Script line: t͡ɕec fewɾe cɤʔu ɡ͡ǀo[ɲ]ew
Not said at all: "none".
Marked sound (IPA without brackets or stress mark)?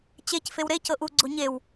ɲ